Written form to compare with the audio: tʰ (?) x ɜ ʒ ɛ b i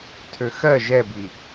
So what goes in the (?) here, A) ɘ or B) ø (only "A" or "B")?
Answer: B